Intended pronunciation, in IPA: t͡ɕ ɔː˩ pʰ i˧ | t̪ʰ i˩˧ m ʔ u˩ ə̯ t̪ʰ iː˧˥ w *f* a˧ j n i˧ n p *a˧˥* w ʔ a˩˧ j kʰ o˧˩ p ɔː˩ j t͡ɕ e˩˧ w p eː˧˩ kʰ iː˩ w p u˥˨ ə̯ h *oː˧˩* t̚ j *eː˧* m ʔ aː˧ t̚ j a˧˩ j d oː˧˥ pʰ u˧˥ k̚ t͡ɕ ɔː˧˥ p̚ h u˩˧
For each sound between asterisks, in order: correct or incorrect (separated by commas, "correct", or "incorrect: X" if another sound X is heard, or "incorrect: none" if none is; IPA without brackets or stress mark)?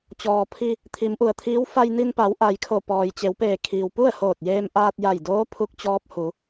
correct, incorrect: a˩˧, correct, correct